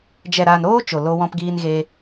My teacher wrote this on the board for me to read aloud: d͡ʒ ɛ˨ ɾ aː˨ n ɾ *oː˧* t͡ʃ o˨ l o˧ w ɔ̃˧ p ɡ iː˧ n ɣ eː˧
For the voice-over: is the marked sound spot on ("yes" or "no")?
yes